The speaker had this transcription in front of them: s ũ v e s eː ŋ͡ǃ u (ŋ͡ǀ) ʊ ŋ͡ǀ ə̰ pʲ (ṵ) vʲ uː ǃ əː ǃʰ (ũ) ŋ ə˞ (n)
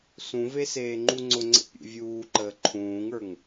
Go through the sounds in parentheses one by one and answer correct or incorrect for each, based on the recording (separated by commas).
correct, correct, incorrect, incorrect